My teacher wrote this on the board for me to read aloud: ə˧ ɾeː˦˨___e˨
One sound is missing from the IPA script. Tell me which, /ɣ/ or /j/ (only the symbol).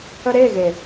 ɣ